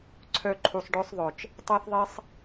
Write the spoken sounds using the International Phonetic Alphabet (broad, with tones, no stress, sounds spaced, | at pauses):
ǀʰ œ˧ ǃʰ u˨ sˤ ɖ œ˦ sˤ ðˤ œ˨ t͡ʃ | tˤ a˦ θ ðˤ e˦ sˤ